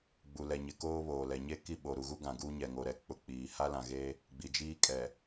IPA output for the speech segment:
ɡ͡b u˨ l ɛ˨ ɲ ɪ˨ k oː˦ β oː˨ l ɛ˨ ɲ e˦ k i˦˨ ɓ o˨ ɾ u˨ ɣ u˦ ɡ ã˨ ɡ uː˦ ɲ ɛ˨ ŋ o˨ ɾ ɛ˨ k͡p ʊ˨ k͡p iː˨ h a˦ l ã˨ ɣ e˦ | ɡ͡b i˨ d͡ʒ iː˦ kʼ ɛ˨

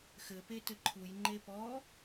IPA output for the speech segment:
x ɘ p e t ɘ ǃʰ u j ŋ͡ǃ e p ɔ

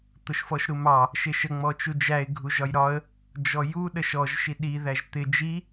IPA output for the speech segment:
t̪ ʊ ʃ f ɔ ʃ ɾ u m ɑ | ʃ ɪ ʃ ə ŋ͡m ɔ t͡ʃ u d͡ʒ æ ɪ̯ ɡʱ u ʒ ɒ j ɾ ɒ ə̯ | d͡ʒ ɔ j u ɗ ə ʃ ɔ ʒ ʃ i ɗ i ð æ ʒ t̪ ɪ d͡ʒ i

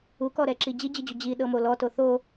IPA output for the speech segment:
u k ɔ ɾ ɛ ǁ i d͡ʑ i d͡ʑ ɯ d͡ʑ u d͡ʑ i ɗ ɤ m o l ɔ t o θ o

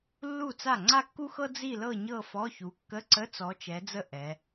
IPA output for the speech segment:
lː u˥˩ t͡s a˥˩ ŋ͡ǀ a˥˧ kː u˥ x ɤ˥ d͡z i˥˧ l ɤ˥˧ ɲ ɤ˥˧ f ɔ˧˥˧ ç u˨˦ kː ə˧˥˧ ǀ ə˧˥˧ t͡s ɔ˨˦ t͡ʃ ɛ˨˦ d͡z ə˥˩ ʔ ɛ˨˦

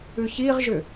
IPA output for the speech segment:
ʉ ç i ʁ ʒ ʏ

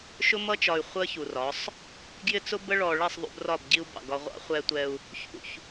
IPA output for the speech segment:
ʃ ʊ˦ m ʌ˦ t͡ʃ ɒ˨ y̯ χʷ əː˦ ç u˨ r ɒ˨˦ sˤ | ɡ j ɪ˦ t͡s ʊ˦ b ə˦ ɭ ɔː˨ ɭ ɛ˦˨ sˤ ðˤ ṵ˦ b r ɒ˦˨ b ɟ i˦ u̯ b ɑ̰˨ ɡ ɒ˦ ʁʷ ɑ̰˦ χʷ ɛ˦ tʷ ɛ˦ u̯ | ç ṵ˦˨ ç

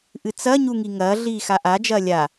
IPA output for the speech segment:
ʔ ɨ t͡s ɐ ɲ u ŋ i ŋ ɐː ɮ iː x a ʔ a d͡ʒ ɐː lʲ a

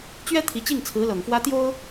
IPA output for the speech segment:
t͡ɕ ɥ ɛ˥ t̪ʰ i˧˥ t͡ɕ i˥˩ ŋ t͡sʰ ɹ̩˧˥ l ɤ˨˩ ŋ f w ä˥ t̪ j o˥ ʊ̯

